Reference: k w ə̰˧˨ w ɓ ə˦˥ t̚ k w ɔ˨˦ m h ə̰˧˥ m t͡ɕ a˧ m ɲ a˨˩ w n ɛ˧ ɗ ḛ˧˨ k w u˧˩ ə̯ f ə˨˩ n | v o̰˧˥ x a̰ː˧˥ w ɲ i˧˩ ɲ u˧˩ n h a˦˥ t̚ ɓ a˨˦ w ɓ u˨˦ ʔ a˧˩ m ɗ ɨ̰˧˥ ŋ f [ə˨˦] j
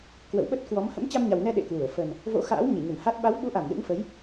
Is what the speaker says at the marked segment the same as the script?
yes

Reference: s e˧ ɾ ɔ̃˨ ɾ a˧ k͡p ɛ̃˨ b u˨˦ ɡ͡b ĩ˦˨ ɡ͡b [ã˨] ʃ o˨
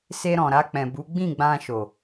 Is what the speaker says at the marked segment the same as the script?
no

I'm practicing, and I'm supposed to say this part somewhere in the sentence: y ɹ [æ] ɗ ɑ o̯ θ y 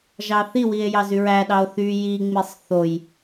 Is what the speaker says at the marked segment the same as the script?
yes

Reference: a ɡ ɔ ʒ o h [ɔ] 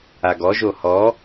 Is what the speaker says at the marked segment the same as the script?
yes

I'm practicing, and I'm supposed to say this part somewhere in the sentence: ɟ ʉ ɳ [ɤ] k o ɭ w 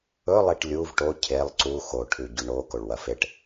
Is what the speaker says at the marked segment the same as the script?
no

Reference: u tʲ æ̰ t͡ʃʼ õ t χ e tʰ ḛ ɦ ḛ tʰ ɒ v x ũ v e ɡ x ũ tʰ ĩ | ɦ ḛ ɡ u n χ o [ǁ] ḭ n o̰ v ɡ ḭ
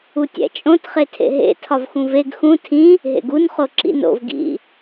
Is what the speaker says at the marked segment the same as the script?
yes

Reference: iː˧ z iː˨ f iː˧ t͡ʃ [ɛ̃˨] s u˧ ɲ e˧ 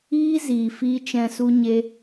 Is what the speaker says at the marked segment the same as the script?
yes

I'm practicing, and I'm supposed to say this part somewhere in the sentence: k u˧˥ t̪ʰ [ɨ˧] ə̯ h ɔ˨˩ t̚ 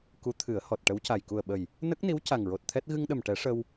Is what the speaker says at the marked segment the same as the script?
no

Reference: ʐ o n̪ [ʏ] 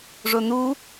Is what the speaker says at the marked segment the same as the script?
no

